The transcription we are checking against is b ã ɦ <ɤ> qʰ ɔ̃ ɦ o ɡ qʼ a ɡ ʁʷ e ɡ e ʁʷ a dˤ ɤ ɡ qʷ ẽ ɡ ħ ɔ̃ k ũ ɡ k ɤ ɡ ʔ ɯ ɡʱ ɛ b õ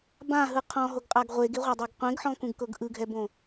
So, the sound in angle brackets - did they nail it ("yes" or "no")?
no